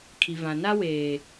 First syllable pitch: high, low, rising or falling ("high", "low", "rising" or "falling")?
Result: low